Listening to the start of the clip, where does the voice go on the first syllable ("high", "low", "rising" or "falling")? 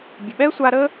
low